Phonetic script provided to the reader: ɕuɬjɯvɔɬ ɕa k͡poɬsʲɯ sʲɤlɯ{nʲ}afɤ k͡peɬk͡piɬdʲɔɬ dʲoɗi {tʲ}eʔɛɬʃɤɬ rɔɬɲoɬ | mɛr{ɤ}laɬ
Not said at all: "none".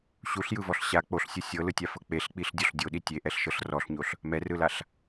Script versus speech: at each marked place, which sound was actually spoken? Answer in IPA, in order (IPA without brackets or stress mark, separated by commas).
tʲ, tʲ, ɯ